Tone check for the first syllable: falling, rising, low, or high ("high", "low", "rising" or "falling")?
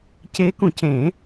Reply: rising